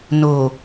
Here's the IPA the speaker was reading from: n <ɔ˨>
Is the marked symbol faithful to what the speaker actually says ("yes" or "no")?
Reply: no